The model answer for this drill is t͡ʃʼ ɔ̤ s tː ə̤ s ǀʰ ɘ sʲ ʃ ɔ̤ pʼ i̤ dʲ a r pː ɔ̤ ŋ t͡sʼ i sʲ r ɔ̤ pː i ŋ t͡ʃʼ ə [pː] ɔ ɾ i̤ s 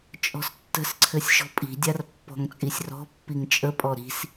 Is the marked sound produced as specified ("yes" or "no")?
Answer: no